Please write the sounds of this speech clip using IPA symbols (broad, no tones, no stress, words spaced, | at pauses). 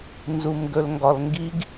nzumɡɵlŋɡɒlŋɡiɡ